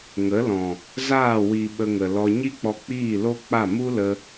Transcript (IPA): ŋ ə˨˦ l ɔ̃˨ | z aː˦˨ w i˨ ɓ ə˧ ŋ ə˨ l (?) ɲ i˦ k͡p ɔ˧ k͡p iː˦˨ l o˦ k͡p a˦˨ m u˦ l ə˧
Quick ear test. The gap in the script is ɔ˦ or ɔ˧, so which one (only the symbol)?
ɔ˧